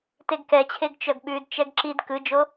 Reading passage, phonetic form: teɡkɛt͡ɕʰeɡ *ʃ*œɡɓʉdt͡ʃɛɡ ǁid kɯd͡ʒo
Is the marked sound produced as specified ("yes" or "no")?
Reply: no